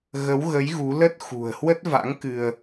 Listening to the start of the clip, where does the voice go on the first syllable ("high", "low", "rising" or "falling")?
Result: rising